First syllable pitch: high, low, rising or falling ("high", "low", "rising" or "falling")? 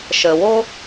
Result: low